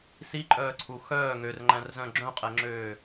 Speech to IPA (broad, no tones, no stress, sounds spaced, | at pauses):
s i ǃʼ œː ǀʰ u x œː ŋ ø r ŋ͡ǃ æ̃ r z œ̃ ɡ͡ǁ œ̃ qʼ ɛ ŋ͡ǁ øː